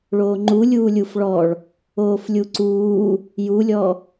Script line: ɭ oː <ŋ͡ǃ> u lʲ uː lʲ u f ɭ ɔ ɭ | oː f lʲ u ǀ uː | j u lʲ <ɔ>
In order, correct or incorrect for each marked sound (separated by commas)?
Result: correct, correct